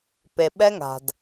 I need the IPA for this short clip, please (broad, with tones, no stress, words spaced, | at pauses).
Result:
pe˨ɓɛ˦ŋa̤˨d